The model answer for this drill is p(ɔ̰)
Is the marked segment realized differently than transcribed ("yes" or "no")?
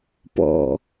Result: no